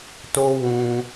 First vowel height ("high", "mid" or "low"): mid